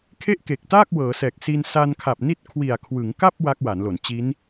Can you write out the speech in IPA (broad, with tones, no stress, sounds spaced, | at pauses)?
kʰ e˥˩ ʔ k e˨˩ k̚ t aː˥˩ k̚ w ɤː˩˦ s ɛː˨˩ k̚ s i˧ n s a˧ n kʰ a˨˩ p̚ n i˦˥ t̚ kʰ w i˨˩ a̯ kʰ w ɯ˩˦ ŋ k a˥˩ p̚ w a˦˥ k̚ w a˩˦ n l o˩˦ n t͡ɕ i˦˥ n